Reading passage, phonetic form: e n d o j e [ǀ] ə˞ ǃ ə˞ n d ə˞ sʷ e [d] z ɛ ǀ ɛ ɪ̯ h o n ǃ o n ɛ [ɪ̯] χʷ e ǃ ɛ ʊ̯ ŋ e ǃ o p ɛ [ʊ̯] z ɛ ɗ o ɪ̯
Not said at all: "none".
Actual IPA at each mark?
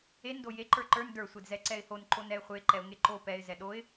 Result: ǃ, d, ɪ̯, ɪ̯

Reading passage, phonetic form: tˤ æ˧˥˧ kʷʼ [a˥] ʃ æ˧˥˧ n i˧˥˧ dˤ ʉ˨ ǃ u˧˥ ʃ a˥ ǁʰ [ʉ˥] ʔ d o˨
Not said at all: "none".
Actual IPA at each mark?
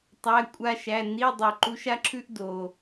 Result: a˥, ʉ˥

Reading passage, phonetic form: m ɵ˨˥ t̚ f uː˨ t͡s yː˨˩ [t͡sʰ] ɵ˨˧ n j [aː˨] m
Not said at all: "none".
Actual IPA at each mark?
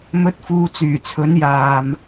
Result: t͡sʰ, aː˨

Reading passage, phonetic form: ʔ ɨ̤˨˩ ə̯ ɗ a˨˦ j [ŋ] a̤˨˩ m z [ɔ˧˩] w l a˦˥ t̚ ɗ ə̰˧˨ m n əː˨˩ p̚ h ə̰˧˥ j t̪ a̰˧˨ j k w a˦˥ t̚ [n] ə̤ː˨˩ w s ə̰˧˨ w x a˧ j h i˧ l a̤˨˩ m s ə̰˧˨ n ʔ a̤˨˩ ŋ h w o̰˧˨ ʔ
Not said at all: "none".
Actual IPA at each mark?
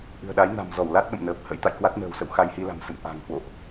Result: n, ɔ˧˩, n

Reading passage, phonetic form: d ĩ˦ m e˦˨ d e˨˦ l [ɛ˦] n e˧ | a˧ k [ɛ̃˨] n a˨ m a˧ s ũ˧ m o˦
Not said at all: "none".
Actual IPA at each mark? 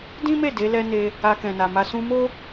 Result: ɛ˦, ɛ̃˨

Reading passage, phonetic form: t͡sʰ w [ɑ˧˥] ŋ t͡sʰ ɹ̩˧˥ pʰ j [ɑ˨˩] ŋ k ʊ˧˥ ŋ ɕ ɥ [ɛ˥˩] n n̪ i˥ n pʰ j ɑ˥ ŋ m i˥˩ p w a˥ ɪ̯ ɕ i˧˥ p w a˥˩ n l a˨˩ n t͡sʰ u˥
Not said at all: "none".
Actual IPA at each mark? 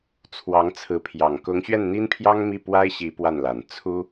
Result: ɑ˧˥, ɑ˨˩, ɛ˥˩

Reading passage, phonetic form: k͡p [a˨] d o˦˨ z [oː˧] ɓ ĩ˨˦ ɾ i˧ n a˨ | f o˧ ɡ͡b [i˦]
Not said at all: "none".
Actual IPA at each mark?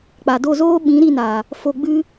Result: a˨, oː˦, ɨ˦

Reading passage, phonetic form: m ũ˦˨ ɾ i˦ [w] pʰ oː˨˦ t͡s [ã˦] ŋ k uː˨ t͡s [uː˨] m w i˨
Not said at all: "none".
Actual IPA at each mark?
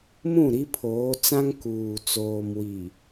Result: none, ã˦, oː˨

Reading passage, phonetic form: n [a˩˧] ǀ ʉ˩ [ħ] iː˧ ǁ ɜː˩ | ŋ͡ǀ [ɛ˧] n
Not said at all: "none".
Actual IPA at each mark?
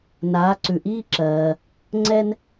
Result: aː˩˧, ʔ, ɛ˧

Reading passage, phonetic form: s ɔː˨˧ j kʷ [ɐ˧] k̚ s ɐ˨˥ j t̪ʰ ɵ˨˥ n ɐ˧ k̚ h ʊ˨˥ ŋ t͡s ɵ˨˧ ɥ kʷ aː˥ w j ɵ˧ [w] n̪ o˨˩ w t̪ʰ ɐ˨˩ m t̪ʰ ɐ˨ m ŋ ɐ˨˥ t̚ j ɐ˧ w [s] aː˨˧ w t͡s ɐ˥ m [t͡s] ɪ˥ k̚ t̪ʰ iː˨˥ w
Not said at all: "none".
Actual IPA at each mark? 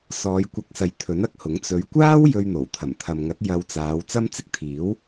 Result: ɐ˧, ɥ, t͡s, t͡s

